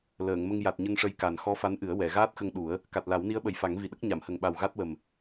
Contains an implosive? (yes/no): yes